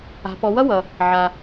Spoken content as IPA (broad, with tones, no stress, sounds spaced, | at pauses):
a̤˩˧ p ɔ˩˧ w ʌ˥ w ʌ˩ | ʕ a˩